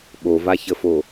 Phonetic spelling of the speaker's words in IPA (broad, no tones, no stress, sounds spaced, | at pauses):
ɓ o v a ç ə f o